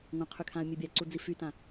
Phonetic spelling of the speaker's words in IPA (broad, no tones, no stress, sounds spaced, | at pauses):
ŋʷ ã qʰ y kʰ ã ə̯ mʲ e bʲ a ǀ u d͡z i f y t ã